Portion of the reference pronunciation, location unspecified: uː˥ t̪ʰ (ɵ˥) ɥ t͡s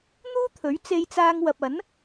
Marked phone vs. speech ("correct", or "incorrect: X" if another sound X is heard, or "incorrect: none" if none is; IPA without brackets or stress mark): incorrect: ɵ˨˥